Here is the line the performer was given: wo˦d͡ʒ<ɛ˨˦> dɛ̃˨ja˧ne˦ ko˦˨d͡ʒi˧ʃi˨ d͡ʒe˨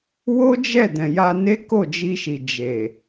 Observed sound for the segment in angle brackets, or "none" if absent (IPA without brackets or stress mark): ɛ˦˨